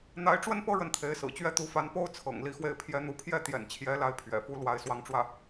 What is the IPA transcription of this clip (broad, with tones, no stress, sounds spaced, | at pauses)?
n̪ a˧˥ ɪ̯ ʈ͡ʂ w ə˥ n p ɤ˥ ɻ ə˥˩ n t̪ʰ e˧˥ ɪ̯ s ɹ̩˨˩ t͡ɕ ɥ ɛ˥ t̪ u˧˥ f a˧˥ n p o˥ ʊ̯ t͡sʰ ɤ̰˨˩ ŋ l i˥˧ x w e˥˩ ɪ̯ pʰ j ɛ˥ n̪ u˧˥ pʰ j ɛ˥˩ t̪ j ɛ̰˨˩ n t͡ɕʰ j ɛ˧˥ l a˥˩ ɪ̯ pʰ ɥ ɛ̰˨˩ f u˥ l w a˥˧ ɪ̯ s w ɑ˥˧ ŋ ʈ͡ʂ w ä˥˩